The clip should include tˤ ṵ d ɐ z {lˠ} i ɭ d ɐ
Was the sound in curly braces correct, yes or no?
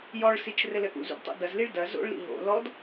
no